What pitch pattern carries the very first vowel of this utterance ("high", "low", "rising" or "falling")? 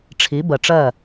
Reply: rising